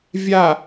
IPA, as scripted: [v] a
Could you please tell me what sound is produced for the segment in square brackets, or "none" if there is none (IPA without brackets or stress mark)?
vʲ